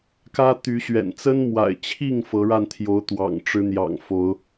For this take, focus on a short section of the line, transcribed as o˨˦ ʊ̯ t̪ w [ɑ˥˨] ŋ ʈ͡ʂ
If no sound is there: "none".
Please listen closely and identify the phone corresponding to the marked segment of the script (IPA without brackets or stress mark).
ɑ̰˨˩